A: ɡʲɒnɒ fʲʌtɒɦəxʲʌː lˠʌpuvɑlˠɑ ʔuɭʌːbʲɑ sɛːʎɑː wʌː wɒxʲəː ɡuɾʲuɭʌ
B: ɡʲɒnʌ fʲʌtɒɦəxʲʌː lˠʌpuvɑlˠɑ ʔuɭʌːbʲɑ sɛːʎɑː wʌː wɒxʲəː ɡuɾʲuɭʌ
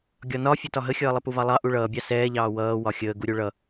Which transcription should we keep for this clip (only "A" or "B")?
A